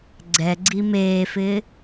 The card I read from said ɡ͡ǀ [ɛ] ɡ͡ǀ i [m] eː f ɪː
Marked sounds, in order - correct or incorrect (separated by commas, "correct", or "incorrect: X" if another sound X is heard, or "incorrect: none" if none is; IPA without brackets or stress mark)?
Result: correct, correct